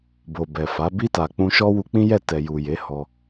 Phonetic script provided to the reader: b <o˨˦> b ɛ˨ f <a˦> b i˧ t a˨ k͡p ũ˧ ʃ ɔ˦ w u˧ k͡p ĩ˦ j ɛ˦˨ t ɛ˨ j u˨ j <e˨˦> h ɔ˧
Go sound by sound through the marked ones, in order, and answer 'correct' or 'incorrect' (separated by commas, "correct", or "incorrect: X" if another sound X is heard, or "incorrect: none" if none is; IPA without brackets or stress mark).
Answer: incorrect: o˨, incorrect: a˨˦, correct